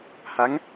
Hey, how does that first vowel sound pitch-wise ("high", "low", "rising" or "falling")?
rising